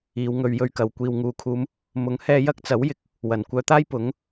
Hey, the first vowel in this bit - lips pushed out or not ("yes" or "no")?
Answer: no